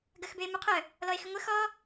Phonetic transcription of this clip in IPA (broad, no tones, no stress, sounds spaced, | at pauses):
ɡ ɐ x b ø e̯ m u qʰ œ | l ɔ e̯ x ʏ ŋʷ ə x ɔ